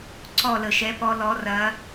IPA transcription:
ǀ ɔ˥˨ l ə˧˩˧ ʃ ɛ˧˥ p ɔ˧˥ l ɔ˧˥ r ɐ˧˥

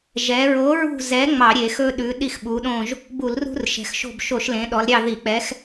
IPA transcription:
ʒ ɛ˩˧ ɹ o˨˥ ɹ ṳ˦˨ z ɛ˨˥ ŋ͡m ɑ˧˩˧ ɾʲ e˧˩˧ x ɵ˦ ɗ ʉ˨˥ ɗ i˦˨ x ɓ u˩˧ ɗ õ˦˨ ʒ | b u˧˩˧ l r ṳ˦ r ʃ ɛ̤˩˧ x ʃ o̤˦˨ b ʃ o˧˩˧ ʃ l ẽ˩˧ ɗ ɔ˩˧ l ɾʲ ɑ˦˨ ð i˧˩˧ k͡p ɛ˨˥ x

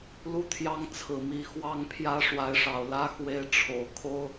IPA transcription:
l u˥˨ t̪ʰ j ɑ˦ ŋ t͡sʰ ɹ̩˨˩ m i˨˦ x w ɑ˦ ŋ pʰ j ä˦ ʂ w a˨˦ ɪ̯ ʂ ɑ˨˩ ʊ̯ l ä˦ x w e˨˦ ɪ̯ ʈ͡ʂʰ o˨˩ ʊ̯ kʰ o˦ ʊ̯

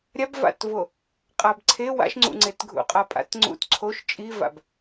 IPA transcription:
ɾʲ a b v a̰ t v o | qʼ a b ǀʰ e w a̰ ʃ ŋ͡ǀ ṵ ŋ͡ǀ e t ɡʱ ṵ qʼ a pʼ a̰ t ŋ͡ǀ ṵ t ǀʰ o ʃ t͡ʃʼ i v a̰ b

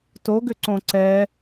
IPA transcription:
t o ɡ ʏ ǀ õ ǀ ɛ

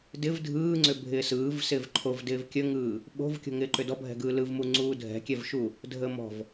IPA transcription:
d ɪ v dʱ ɯː ŋ͡ǀ ʏ bʱ ɪː s ɯː v s ɪː v ǃʰ o v d ɪː v kʲ ə ŋ ɯː | ɓ o̤ v kʲ o̤ ŋ ɪː ǃ ʏ d ɔ bʱ ɛ̤ ɡ ɯː l ɯ v m u ŋ͡ǀ uː dʱ ɛ̤ kʲ ɛ v ʃ u | dʱ əː m ɔ̤ v

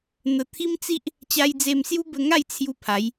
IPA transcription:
n̪ ə˨˩ t̪ʰ i˦ m t͡s i˦ ʔ | t͡ɕ a˧ j d͡z e˧ m s j u˦ b ə˧ ŋ a˥˧ j t͡sʰ j u˧ pʰ a˨˦ j

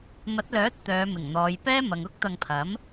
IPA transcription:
m ɐ˨˥ t̚ l œː˨˥ t̚ t̪ œː˨˧ m ɪ˨˩ ŋ n̪ ɔː˨˧ j p ɛː˥ m ɐ˨ ŋ ʊ˥ k̚ t̪ ɐ˧ ŋ pʰ ɐ˨˥ m

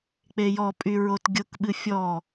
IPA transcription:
k͡p e j ɔ pʼ y ɹ o t ɡʲ ʊ k ɓ ɨ fʲ ɔ

